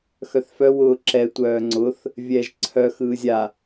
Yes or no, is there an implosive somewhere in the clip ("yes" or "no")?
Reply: no